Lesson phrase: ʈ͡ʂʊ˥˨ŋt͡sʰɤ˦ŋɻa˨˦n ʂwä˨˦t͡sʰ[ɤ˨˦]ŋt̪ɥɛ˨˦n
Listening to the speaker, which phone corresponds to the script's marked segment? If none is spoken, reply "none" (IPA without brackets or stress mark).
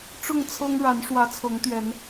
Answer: ɤ˨˦